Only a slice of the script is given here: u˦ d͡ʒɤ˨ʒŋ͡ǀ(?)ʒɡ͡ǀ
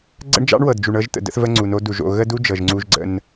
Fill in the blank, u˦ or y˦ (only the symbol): u˦